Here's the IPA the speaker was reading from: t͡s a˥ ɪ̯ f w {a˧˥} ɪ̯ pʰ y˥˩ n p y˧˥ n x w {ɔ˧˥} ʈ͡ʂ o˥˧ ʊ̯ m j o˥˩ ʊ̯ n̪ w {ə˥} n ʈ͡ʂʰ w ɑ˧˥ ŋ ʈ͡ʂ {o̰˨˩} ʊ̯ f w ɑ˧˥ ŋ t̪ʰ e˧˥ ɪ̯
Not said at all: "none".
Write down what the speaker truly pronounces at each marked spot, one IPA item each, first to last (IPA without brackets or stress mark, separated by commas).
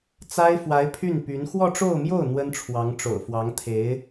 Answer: a˧˥, ɔ˥˧, ə˥, o̰˨˩